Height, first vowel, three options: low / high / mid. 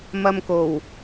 low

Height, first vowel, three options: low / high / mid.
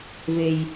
mid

